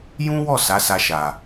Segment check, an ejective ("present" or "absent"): absent